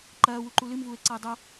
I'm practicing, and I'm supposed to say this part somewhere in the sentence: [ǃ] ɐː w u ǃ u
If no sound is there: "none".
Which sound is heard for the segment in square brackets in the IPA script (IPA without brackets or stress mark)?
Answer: ǃ